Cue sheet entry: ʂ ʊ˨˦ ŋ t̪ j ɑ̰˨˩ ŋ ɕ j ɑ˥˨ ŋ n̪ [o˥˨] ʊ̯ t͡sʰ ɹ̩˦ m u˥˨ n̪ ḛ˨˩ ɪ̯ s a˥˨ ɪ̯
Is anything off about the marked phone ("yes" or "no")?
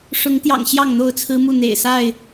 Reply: no